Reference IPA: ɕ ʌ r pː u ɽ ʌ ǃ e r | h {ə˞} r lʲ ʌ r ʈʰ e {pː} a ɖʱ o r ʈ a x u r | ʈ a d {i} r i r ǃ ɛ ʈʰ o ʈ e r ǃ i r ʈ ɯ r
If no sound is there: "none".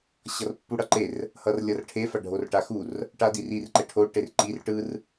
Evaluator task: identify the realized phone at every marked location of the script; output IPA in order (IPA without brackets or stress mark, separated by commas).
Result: ʌ, f, i